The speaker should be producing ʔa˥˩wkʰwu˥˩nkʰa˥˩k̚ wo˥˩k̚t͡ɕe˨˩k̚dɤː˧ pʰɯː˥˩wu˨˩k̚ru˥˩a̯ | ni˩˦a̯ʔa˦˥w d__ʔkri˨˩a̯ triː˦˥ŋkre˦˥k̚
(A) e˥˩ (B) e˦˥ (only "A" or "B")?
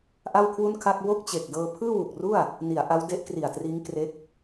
B